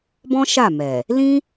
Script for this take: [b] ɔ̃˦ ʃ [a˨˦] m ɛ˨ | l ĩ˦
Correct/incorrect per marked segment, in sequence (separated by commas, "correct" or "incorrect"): correct, incorrect